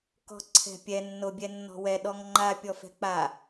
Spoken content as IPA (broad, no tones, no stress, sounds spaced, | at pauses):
k ɔ̤ ǀʰ ɛ̤ pʲ ɛ nː o bʲ ɛ nː ɔ̤ w ɛ ɗ ɔ ŋ ŋ͡ǃ a pʲ ɔ f ɛ̤ k͡p a